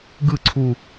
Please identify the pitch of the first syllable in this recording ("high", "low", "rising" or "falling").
falling